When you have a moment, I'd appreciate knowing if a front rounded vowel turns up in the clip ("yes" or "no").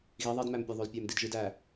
yes